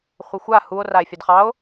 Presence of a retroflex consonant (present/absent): absent